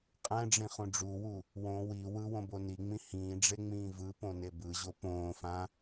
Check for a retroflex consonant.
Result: present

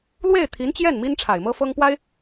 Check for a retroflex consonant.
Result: present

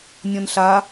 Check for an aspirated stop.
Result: absent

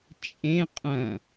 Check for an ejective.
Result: present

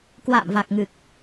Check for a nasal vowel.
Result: absent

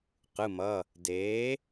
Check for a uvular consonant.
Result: present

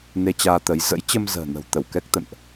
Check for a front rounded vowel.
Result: absent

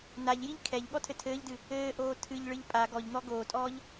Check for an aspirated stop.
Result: present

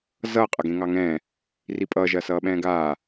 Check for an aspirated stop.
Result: absent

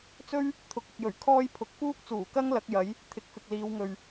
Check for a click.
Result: absent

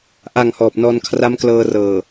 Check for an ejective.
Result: absent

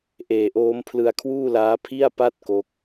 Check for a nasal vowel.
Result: absent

